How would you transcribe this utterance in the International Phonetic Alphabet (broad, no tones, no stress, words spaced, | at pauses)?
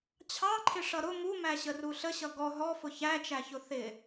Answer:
t͡ɕʰɑǃʰɪ ʂʌɾʊ mumæɕəru ɬəɕʌ ɡɔ ɦɔfʊ çæt͡ʃæçʊ θɪ